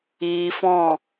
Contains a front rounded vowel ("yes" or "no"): no